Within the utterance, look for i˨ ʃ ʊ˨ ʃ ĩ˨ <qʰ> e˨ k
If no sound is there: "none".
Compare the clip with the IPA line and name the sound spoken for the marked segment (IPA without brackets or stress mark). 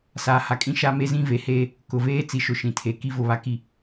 tʰ